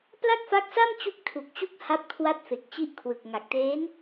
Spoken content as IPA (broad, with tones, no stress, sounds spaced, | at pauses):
p l a˥˩ k̚ f a˦˥ k̚ s a˥˩ m t͡ɕ u˦˥ k̚ tʰ u˨˩ k̚ t͡ɕ u˦˥ k̚ h a˦˥ p̚ kʰ w a˦˥ t̚ f e˨˩ k̚ t͡ɕ i˦˥ ʔ kʰ w ɯ˨˩ k̚ ŋ a˨˩ k̚ t eː˦˥ n